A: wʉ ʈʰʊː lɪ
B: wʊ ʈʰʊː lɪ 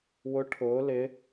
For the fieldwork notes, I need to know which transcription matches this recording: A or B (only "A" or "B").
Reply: B